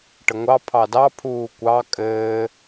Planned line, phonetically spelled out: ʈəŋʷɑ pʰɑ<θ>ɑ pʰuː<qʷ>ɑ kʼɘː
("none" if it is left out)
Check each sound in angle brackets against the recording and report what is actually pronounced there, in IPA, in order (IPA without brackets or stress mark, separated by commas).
d, kʷ